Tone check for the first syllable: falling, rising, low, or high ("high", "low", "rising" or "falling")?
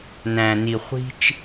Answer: low